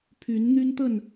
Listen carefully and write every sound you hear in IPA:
pʰ y˨˦ n n̪ y˦ n t̪ ə˥˨ n

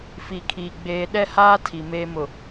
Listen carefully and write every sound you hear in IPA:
f i˨ kʰ iː˨ ɡ͡b eː˨ ɗ ɛ˦ h aː˦ tʰ i˨ m eː˦ m ʊ˨

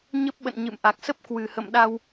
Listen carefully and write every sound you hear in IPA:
ɲ ə˦˥ p̚ ɓ ə̰˧˨ n ɲ ɨ̰˧˨ m ʔ a˨˩ k̚ s ə˦˥ p̚ k w ɨ˨˩ h ə̰˧˨ m ɗ a˧ w

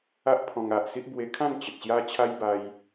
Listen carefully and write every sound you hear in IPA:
a˦ ʔ pʰ ɔ̃˧ ŋ a˨ ʔ s i˦ ʔ b w e˧ kʰ ã˥˧ n t͡ɕ ə˨ t̚ ɕ j a˦ t͡ɕʰ a˦ j b a˧ j

